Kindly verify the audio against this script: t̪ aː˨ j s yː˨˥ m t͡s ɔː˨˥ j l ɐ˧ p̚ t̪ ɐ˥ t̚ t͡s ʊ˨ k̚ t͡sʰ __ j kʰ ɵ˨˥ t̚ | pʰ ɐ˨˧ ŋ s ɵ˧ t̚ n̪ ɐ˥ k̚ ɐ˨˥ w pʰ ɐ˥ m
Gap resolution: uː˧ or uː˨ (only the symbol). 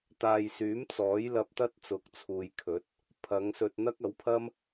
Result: uː˨